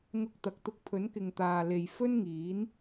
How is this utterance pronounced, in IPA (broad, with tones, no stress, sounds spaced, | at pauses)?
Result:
ŋ ʊ˧ k̚ t̪ ɐ˨ k̚ t̪ ʊ˧ k̚ pʰ ɵ˨˥ n k ɪ˨ ŋ t̪ aː˨ l e˨ j f ɵ˥ n ŋ iː˨˥ n